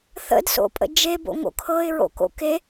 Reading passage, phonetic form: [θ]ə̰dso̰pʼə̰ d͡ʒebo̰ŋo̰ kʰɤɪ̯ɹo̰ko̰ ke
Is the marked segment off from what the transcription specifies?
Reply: no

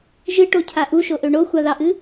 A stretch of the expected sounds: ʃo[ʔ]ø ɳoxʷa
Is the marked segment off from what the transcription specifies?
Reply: no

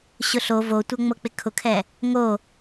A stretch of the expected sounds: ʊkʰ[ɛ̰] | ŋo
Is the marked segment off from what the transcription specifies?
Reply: yes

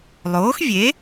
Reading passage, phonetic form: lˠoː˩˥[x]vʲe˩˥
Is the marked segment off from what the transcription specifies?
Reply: no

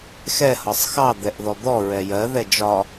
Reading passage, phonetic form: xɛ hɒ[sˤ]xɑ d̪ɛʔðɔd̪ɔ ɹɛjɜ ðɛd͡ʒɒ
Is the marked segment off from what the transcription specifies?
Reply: no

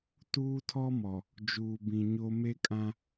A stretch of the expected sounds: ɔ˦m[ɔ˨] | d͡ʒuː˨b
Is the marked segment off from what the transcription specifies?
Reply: no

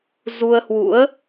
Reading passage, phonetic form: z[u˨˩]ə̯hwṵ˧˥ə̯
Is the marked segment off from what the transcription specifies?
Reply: yes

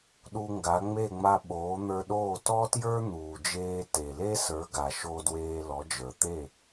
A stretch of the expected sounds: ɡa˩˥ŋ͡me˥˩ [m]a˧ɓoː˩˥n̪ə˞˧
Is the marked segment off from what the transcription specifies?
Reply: yes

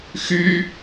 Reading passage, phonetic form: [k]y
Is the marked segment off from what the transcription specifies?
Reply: yes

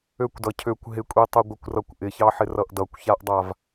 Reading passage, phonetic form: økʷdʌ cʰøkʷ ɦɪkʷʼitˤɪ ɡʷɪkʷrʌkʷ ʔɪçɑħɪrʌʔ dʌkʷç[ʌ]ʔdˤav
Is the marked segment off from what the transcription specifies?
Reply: yes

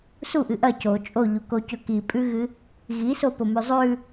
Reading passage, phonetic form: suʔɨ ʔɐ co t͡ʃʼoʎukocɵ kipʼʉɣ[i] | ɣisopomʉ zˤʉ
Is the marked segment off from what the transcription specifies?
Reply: yes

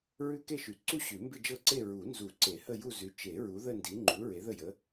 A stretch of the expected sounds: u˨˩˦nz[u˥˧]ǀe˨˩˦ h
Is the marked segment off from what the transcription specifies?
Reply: yes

